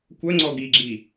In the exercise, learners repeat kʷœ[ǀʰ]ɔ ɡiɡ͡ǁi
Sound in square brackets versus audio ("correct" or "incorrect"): incorrect